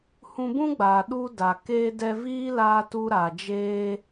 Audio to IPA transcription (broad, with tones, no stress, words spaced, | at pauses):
hũ˧bũ˦ɡ͡baː˨ ɗu˦da˨ keː˧dɛ˧viː˦ laː˧ tu˦ɾa˨d͡ʒeː˦